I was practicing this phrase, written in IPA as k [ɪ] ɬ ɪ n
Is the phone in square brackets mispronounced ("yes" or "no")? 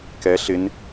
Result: yes